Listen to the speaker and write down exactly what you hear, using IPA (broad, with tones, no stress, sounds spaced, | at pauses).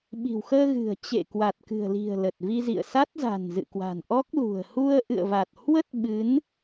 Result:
ɓ i̤˨˩ w x əː˧ ɣ ɨ̤˨˩ ə̯ t͡ɕ ḛ˧˨ k w a˨˩ t̚ k ɨ̤˨˩ ə̯ l i̤˨˩ ə̯ l ə˨˩ t̚ v i˧ z ḭ˧˨ ə̯ s a˦˥ t̚ z a̤˨˩ n z ɨ̰˧˨ k w a̤˨˩ n ʔ ɔ˦˥ k̚ l ṳ˨˩ ə̯ h u˧ ə̯ ʔ ɨ̰˧˨ ə̯ v a˨˩ t̚ h w ə˦˥ t̚ ɓ ɨ˨˦ n